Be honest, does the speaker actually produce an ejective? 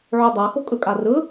yes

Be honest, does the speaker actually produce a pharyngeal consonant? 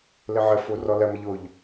yes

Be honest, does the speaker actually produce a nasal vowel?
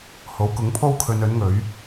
no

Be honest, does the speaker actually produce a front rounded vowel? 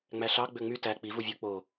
yes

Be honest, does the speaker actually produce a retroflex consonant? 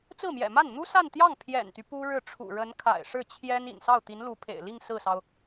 yes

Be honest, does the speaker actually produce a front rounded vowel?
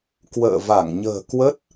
no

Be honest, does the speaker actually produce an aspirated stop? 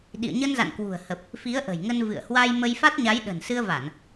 no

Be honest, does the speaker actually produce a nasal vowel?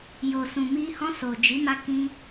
yes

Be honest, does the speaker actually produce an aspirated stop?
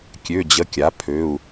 yes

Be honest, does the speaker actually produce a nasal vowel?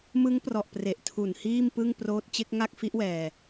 no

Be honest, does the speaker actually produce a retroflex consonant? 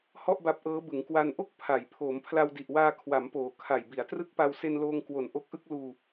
no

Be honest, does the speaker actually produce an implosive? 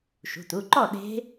yes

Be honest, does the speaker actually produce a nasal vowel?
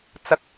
no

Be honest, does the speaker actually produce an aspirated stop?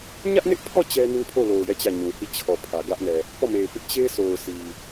yes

